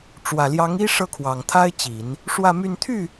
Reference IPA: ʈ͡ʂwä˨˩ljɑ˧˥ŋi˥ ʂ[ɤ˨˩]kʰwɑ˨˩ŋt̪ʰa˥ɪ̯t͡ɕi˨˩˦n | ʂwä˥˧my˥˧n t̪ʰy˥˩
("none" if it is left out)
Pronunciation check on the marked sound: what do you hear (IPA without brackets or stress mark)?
ɤ˥˩